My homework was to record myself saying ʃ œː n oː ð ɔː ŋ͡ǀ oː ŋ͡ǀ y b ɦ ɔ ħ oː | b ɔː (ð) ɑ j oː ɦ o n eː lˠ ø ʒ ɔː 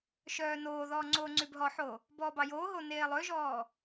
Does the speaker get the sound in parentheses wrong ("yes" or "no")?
yes